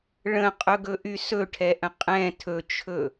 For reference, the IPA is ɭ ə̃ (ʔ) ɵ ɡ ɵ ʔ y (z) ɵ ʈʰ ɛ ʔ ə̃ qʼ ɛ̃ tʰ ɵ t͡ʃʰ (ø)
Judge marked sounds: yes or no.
no, no, no

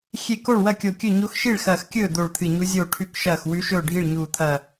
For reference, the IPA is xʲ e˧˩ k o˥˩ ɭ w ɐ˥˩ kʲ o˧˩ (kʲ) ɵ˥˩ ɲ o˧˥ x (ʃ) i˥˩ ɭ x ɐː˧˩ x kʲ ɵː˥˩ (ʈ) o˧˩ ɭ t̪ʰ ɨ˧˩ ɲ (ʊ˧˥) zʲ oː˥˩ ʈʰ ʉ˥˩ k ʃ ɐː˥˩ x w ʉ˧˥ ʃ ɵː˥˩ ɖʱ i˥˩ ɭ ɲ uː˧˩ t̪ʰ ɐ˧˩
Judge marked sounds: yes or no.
yes, yes, no, no

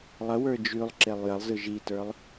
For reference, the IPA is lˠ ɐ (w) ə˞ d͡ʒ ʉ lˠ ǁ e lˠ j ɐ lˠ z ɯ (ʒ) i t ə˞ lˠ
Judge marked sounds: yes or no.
yes, yes

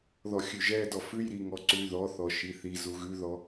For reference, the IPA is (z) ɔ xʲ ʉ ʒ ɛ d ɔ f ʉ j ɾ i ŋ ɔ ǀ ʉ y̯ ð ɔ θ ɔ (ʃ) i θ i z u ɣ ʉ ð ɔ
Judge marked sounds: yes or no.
no, yes

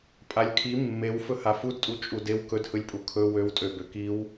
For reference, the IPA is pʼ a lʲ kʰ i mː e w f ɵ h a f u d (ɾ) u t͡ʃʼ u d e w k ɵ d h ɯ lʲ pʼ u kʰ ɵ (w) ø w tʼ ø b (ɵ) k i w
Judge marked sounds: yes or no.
no, yes, no

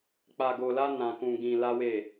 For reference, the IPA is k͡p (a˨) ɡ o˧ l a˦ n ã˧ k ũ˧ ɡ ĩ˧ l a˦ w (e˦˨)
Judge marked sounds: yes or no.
no, yes

